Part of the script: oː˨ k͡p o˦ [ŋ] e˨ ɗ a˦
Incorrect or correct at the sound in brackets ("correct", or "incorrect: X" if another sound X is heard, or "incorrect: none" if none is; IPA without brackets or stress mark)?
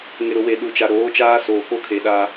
incorrect: kʰ